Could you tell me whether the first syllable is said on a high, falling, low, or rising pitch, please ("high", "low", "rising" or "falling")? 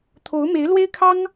rising